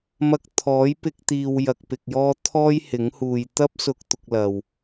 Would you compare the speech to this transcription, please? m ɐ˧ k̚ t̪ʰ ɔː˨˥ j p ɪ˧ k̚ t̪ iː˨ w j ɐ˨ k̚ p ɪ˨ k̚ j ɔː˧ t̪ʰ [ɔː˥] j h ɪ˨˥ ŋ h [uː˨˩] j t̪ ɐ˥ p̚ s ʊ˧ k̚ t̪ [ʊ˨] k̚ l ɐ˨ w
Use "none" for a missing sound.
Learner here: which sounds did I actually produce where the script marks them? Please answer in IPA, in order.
ɔː˥, uː˨, ʊ˧

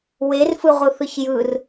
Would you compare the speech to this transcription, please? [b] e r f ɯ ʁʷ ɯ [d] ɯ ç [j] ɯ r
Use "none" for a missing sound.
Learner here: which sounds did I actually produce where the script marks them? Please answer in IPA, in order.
w, θ, j

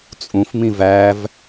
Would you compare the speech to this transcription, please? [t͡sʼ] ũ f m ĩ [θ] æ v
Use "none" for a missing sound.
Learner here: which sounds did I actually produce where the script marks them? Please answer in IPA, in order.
t͡sʼ, v

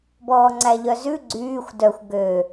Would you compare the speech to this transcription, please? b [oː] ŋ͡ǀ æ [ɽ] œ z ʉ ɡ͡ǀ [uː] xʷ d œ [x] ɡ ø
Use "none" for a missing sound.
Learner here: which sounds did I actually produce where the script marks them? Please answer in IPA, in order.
ɔː, ʎ, yː, xʷ

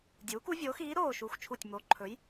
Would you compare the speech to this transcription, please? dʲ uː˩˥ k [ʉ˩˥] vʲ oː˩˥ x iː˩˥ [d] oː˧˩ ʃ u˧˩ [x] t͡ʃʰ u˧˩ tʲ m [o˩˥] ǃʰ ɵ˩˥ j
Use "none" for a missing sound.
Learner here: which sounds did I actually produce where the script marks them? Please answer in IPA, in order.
u˩˥, ɾ, x, o˩˥

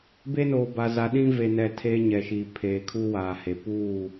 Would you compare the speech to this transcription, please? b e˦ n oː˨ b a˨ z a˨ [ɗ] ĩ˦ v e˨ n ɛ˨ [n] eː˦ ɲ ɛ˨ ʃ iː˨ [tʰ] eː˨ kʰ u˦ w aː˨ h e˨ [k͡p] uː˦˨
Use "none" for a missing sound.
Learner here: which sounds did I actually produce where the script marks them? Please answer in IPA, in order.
ɗ, tʰ, pʰ, p

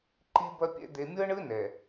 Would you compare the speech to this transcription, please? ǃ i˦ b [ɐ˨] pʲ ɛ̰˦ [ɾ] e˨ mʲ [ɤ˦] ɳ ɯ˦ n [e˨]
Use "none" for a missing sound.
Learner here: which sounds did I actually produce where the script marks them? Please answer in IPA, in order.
ɐ˦, d̪, ɤ˦, ɛ˨

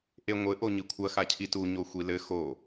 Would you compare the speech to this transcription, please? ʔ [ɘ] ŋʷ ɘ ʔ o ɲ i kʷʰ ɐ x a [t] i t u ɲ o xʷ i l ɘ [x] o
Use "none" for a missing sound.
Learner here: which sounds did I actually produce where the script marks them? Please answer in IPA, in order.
e, cʰ, x

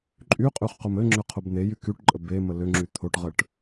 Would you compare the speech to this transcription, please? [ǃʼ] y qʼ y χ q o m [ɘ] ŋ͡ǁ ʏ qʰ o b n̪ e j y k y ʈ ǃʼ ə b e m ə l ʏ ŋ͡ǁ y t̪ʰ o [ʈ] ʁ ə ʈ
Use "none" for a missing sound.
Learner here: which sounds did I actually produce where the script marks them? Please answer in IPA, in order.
ǃʼ, ɘ, ʈ

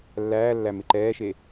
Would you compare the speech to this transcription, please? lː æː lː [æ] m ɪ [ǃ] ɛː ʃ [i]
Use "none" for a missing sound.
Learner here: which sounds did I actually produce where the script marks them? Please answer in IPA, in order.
æ, ǃ, e

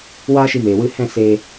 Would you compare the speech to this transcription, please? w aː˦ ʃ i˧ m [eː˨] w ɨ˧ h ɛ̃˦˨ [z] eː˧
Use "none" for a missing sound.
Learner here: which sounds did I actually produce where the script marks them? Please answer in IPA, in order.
eː˨, s

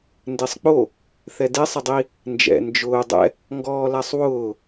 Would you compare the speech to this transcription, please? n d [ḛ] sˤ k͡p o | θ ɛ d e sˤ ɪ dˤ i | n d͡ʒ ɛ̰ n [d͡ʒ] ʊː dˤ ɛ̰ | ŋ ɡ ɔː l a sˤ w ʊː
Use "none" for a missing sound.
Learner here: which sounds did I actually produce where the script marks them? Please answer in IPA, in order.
e, d͡ʒ

